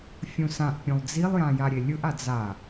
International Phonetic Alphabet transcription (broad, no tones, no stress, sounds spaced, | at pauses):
fʲ ũ s ã ʔ pʲ ũ lˠ d͡z i lˠ j ã j a ɾʲ e lʲ ɯ ʔ a d͡z a